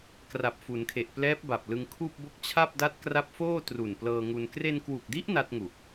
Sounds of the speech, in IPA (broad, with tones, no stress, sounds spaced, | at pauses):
k r a˨˩ p̚ f u˩˦ n kʰ e˨˩ ʔ p l ɛː˦˥ p̚ b a˨˩ p̚ l ɯ˧ ŋ kʰ uː˥˩ p̚ b o˥˩ k̚ t͡ɕʰ a˥˩ p̚ d a˦˥ t̚ k r a˦˥ p̚ f oː˥˩ t r u˨˩ n p l ɤː˧ ŋ u˧ n k r e˧ n k w u˨˩ k̚ d i˦˥ ʔ n a˦˥ t̚ ŋ u˨˩ k̚